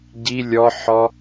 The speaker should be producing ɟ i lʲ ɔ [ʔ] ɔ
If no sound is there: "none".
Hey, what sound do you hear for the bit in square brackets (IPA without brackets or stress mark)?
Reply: ħ